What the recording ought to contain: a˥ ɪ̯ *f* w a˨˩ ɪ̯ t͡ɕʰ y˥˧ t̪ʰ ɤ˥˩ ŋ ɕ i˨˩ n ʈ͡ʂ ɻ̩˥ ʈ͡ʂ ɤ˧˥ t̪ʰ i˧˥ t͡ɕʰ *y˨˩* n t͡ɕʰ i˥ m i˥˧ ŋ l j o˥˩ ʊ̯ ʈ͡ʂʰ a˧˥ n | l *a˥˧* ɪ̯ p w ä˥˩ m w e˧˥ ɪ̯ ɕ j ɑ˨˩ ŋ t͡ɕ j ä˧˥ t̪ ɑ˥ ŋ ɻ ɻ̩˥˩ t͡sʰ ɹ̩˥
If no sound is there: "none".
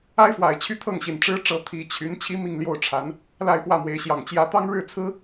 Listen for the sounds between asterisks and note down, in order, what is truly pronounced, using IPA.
f, y˧˥, a˥˧

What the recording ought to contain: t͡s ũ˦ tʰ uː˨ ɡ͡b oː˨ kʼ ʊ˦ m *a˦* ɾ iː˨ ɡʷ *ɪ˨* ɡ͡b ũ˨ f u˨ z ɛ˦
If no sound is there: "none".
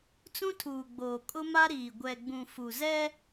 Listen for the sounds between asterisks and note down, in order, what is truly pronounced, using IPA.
a˦, ɛ˨

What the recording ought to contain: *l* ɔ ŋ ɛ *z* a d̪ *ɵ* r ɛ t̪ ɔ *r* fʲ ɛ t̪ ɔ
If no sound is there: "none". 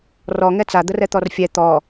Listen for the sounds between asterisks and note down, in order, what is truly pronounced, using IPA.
r, t͡s, ə, r

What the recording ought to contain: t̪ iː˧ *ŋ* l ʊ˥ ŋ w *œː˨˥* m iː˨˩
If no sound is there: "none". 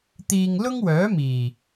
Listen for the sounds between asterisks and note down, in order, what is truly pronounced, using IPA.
ŋ, œː˨˥

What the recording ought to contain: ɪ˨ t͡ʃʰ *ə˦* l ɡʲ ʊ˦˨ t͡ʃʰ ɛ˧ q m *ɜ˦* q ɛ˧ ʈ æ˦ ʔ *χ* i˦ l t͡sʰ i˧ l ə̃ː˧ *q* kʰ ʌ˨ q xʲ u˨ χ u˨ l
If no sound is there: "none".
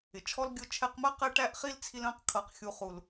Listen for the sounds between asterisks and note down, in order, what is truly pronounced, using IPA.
ɔ˦, ɜ˦, χ, q

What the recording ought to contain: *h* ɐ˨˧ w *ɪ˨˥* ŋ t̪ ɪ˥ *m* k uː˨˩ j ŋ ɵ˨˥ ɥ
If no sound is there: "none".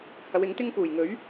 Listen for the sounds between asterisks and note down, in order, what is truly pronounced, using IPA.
h, ɪ˨˥, ŋ

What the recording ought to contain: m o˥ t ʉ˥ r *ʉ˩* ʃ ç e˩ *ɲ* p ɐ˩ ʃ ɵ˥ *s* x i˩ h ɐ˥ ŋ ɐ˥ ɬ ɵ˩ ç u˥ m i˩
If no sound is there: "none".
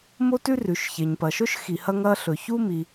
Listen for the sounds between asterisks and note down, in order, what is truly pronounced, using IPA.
ʉ˩, ɲ, ʃ

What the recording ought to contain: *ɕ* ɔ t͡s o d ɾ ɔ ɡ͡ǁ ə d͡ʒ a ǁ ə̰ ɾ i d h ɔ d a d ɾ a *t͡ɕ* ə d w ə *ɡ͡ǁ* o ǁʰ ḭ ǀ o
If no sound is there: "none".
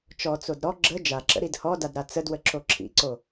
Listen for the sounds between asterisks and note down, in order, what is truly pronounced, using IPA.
t͡ʃ, t͡s, ǁ

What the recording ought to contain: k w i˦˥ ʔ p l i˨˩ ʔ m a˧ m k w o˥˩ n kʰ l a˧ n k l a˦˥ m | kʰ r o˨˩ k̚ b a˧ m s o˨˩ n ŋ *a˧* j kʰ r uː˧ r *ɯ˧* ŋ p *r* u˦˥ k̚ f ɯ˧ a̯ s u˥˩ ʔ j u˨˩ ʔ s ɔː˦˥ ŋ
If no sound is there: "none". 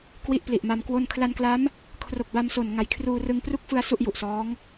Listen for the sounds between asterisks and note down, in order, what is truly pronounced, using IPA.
a˨˩, ɯ˧, r

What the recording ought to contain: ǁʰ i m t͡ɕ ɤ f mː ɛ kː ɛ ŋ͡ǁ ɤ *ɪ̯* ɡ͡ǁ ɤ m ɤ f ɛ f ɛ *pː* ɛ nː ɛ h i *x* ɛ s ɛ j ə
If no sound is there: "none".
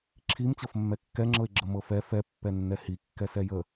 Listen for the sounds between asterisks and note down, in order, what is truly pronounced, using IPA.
ɪ̯, pː, kː

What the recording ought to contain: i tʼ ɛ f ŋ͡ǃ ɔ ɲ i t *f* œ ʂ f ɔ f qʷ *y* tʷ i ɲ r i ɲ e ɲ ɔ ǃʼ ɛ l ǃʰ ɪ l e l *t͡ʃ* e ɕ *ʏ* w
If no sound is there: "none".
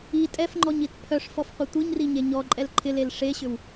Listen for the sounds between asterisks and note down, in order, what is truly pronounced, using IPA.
pʰ, ɪ, ʂ, ʏ

